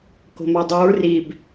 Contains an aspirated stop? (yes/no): no